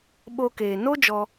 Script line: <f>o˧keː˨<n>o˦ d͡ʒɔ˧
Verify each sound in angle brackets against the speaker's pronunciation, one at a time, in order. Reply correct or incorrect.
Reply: incorrect, correct

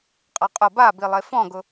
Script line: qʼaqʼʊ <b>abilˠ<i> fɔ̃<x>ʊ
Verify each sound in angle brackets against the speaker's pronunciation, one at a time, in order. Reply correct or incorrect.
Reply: correct, incorrect, incorrect

